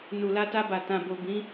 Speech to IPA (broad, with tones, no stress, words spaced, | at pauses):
nu˨la˧ ta˧ba˨ tã˨bo˨ bĩ˨˦